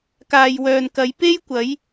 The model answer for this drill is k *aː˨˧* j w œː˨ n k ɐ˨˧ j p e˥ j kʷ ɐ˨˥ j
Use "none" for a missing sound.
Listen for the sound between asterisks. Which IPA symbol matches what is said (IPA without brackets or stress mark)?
aː˨